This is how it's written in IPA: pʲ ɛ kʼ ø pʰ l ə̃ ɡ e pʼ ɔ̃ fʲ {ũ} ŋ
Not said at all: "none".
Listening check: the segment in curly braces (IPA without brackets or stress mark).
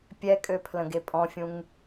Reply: ũ